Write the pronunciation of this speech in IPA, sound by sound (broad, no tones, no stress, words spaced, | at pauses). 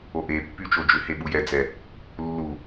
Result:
oʔepːy t͡ʃod͡ʒʏhe ɓujɛd͡zɛ | lːu